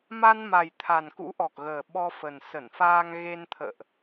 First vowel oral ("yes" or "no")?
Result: yes